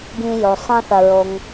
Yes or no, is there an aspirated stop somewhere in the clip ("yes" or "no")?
no